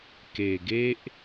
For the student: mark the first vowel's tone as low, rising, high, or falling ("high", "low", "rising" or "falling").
low